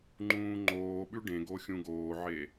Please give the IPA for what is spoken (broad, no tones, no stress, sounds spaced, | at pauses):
ŋ͡ǃ ũː ŋ͡ǃ oː ɓ ʉ ɖ ẽ ɡ o xʲ ũ ɡ oː ʕ e